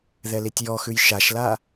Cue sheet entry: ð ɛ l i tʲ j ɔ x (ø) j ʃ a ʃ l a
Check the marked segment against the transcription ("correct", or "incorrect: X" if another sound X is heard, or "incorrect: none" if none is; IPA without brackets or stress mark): incorrect: ʉ